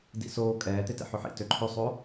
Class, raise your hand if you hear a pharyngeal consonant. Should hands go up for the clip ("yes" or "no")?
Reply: yes